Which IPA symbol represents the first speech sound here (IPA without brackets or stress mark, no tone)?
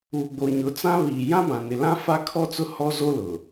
uː